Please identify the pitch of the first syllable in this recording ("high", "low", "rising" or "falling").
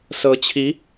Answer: rising